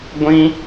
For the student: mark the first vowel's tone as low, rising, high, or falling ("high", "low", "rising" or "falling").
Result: high